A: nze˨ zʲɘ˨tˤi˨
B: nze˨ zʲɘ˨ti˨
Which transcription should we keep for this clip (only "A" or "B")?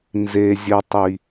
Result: A